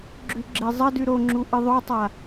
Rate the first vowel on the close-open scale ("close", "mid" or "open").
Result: close